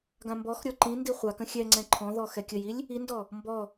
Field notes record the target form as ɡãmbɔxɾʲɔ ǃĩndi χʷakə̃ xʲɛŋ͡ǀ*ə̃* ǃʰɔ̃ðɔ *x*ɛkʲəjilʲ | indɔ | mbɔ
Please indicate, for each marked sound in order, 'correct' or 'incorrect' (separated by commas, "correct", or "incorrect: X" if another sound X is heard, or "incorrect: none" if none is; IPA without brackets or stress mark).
incorrect: ɛ̃, correct